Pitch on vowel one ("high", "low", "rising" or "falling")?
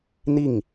falling